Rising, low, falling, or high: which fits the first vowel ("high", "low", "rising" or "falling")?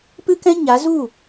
high